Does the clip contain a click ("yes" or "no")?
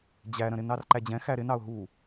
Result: yes